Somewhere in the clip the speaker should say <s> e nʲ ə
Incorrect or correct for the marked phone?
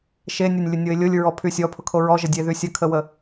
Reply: incorrect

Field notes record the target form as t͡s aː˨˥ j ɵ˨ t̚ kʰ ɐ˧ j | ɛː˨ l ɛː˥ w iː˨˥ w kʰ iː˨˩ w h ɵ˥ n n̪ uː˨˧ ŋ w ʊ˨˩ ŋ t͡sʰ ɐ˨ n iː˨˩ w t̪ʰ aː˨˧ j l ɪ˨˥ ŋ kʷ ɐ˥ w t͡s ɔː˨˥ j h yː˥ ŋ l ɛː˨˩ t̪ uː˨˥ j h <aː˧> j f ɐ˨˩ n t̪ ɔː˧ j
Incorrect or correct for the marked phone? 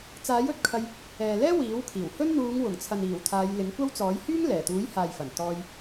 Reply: incorrect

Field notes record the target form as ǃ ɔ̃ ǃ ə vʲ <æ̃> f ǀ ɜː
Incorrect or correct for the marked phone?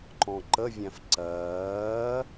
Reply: correct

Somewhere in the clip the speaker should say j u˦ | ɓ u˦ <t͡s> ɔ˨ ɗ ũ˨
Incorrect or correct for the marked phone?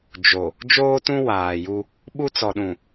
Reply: correct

